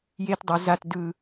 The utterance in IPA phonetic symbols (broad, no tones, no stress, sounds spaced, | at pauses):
j e t dˤ u z a t d ɯ